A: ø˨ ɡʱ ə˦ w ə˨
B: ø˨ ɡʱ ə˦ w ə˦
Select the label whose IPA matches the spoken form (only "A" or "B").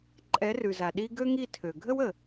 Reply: A